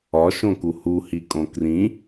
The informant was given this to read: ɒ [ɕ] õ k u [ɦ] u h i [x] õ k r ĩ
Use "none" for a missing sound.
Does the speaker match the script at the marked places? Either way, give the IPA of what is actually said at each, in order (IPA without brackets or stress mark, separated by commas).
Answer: ʃ, h, kʼ